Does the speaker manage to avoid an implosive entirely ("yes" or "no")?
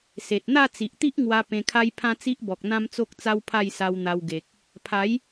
yes